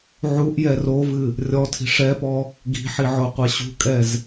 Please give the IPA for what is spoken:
ʕ u ʔ j ɛ r o v ɨ | rʲ ɔ tʰ i̤ ʂ ɛ p ɔ | ɡ i̤ ħ i ʕ o qʷ ɛ ɕ ṳ kʼ ɛ z

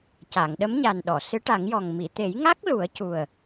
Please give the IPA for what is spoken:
c a˨˩˨ ŋ ɗ ə˧˥ m ɲ a˨˩ n ɗ ɔ˨˩˨ s ɨ˧˥ ʈ a˨˩˦ ŋ j ɔ˨˩ ŋ m i˨˩˨ t̪ e˨˩˦ j ŋ a˦˥ k̚ l u˨˩˦ ə̯ c u˨˩ ə̯

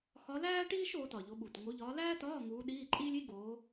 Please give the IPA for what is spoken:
x ɒ˨˦ l æː˥ ʈ iː˥ ʃ oː˨˦ t ɒ˨˩ ʎ o˨˦ ɓ u˨˩ t ŋ o˨˦ ʎ ɒː˨˦ l æː˥ t ɒː˧˥˧ ŋ uː˨˦ ɗ iː˧˥˧ ǃʼ iː˥ lʲ i˥ ɡ oː˨˦

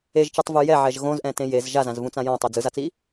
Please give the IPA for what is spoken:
e ʒ t͡ʃ ɯ tˤ v u j ɛ ʕ ɛ ʒ ɣ õ z ʔ ɛ̃ t ẽ j e z ʒ a z ã z v ũ t͡s ã j ɔ̃ tˤ i d͡z ɯ z a t͡s i

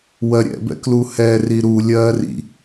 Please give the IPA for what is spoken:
w ɜ ɾʲ ɛ̰ b ɛ̰ k l u h ɛː r i ɾ u lʲ ɜː r ḭ

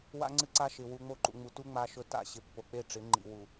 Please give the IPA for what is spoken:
w a̰˦ ŋ͡ǀ ɨ˦ ǀ a˦ ʃ ɪ˨ w u˨ ŋ͡m o˦˨ ǃ ṵ˨ ŋ͡m u˨ t u˦ ŋ͡m a˦ ʃ ɵ˦ t a̰˦˨ ɕ ɪ˨ pː o˨ k͡p e˦˨ ʈ͡ʂ ɪ˨˦ ŋ͡ǃ ḭ˨ w u˨

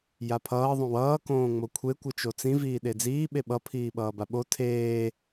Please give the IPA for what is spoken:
j a pʰ ʌː ðˤ õ w ʌː k õː ŋ͡m o kʷʰ e kʷ ɯ t͡ʃ o t͡s ĩ v iː ɗ e d͡z iː ɓ e ɓ ʌ pʰ iː ɓ ʌː b a ɓ o tʰ eː

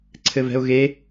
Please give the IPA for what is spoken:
ǀʰ ɘ v ɛ̤ ʊ̯ ɣ e

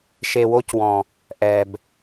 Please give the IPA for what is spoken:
ʃ e˨ w o˦ c w ɔ̃˨ | ʔ ɛ˨ b

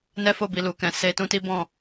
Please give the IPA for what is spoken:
n ɛ˦ f o˦˨ b i˨ l u˨ k ɛ̃˨ s e˧ t ũ˦ t i˦ b ɔ̃˦˨

